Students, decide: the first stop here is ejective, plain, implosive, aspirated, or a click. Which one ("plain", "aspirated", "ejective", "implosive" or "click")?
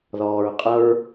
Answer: ejective